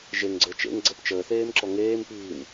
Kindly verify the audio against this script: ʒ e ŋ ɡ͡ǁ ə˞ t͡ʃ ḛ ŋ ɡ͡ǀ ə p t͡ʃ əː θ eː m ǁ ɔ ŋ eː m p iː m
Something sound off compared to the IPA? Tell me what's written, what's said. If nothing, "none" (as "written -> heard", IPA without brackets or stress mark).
ɡ͡ǁ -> ɡ͡ǀ